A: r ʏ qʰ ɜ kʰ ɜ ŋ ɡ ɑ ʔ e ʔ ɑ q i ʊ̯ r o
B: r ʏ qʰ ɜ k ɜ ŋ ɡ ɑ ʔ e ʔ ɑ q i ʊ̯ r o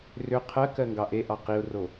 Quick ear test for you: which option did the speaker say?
B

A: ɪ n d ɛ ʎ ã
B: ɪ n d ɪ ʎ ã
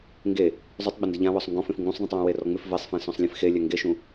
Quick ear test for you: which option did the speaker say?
B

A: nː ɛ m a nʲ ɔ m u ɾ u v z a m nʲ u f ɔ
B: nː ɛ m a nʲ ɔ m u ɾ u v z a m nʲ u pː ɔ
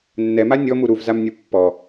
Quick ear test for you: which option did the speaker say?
B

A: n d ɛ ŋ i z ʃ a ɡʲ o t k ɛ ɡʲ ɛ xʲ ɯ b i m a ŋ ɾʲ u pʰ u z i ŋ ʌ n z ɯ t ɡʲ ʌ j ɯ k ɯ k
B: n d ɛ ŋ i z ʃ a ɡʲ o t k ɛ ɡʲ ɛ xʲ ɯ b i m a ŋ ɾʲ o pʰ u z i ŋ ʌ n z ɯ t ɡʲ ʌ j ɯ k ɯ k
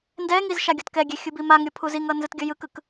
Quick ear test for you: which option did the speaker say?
B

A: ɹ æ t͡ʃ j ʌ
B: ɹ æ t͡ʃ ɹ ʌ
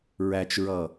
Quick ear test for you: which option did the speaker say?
B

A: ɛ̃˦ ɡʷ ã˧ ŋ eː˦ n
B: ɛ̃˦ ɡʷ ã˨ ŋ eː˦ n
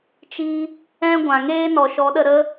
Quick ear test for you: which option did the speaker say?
B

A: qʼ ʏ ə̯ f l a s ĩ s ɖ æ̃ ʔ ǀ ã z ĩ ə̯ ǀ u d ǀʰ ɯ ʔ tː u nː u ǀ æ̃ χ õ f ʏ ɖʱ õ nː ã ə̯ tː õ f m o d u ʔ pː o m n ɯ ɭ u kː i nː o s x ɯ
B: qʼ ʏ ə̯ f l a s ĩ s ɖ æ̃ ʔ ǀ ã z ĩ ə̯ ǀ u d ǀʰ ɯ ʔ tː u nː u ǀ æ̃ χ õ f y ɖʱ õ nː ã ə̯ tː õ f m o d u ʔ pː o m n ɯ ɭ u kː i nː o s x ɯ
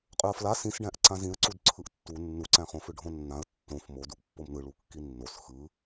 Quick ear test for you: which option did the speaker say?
A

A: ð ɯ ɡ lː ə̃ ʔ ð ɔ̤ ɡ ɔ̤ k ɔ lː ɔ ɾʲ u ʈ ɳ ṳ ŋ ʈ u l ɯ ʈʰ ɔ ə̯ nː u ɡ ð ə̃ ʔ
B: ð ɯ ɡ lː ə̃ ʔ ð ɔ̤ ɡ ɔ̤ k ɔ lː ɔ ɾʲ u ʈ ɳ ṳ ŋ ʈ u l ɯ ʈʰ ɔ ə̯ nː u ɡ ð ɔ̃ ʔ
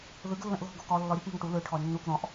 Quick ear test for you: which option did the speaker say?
B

